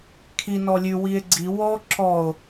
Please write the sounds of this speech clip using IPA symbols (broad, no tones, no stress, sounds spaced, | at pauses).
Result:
kʰ i n ɔ lʲ ʉ w i e̯ ɡ͡ǀ i w ɔ ǁ ɔ o̯